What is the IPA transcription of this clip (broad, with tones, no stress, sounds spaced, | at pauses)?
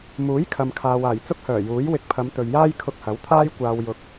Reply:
m uː˨˥ j kʰ ɐ˨ m kʰ aː˨ w aː˨˩ j t͡s ʊ˥ k̚ h œː˨˩ j uː˨˥ j w ɪ˧ k̚ pʰ ɐ˨˧ m t̪ ɵ˨ ɥ j aː˥ j kʰ ʊ˧ k̚ h ɐ˨˥ w t̪ʰ aː˥ j kʷ aː˧ w j ʊ˧ k̚